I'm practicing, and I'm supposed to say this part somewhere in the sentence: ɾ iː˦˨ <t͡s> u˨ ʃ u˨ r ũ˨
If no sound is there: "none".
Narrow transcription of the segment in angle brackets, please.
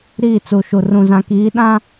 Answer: t͡s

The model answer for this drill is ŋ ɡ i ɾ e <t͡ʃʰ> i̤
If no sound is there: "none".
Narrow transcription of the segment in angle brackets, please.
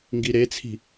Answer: t͡sʰ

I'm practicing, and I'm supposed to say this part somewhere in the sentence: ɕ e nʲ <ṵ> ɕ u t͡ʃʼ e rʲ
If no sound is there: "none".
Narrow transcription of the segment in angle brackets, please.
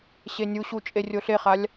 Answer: u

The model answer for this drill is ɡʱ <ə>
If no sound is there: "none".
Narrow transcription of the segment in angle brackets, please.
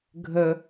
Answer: ə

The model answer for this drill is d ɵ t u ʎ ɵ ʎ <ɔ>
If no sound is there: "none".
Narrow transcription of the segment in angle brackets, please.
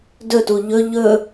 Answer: ɵ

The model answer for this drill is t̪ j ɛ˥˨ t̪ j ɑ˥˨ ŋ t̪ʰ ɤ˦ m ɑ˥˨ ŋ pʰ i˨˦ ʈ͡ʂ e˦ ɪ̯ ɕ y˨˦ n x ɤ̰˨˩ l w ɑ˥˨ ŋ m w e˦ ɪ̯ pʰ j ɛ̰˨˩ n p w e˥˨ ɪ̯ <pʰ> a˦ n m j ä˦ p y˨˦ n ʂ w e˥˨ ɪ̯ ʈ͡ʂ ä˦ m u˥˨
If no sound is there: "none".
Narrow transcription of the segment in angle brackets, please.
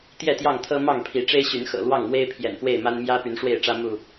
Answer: m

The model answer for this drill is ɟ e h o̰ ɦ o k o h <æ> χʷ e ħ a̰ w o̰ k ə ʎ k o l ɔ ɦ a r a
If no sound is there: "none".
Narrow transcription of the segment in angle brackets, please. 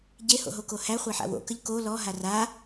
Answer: æ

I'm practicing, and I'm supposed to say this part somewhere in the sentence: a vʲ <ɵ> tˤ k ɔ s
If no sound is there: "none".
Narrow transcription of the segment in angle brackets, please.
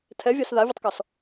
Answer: ɵ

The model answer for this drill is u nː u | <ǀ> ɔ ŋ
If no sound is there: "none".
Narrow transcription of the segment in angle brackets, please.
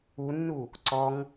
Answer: ǀ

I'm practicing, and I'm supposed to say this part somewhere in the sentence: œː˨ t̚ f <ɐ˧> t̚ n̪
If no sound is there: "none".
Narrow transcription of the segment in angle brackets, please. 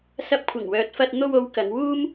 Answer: ɐ˧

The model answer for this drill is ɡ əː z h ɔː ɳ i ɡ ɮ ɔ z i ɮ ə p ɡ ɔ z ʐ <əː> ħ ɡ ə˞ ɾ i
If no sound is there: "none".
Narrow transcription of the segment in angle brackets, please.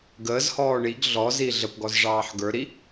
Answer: ɑː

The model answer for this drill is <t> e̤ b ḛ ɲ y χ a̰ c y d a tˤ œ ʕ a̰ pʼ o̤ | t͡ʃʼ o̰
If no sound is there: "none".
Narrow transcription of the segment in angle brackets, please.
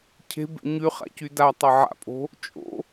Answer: cʰ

